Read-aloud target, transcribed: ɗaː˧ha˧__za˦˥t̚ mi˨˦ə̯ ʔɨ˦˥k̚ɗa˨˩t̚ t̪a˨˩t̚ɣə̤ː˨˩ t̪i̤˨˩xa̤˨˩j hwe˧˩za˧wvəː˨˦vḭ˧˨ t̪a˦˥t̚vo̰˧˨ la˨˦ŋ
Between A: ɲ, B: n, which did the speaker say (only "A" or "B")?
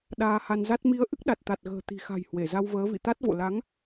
B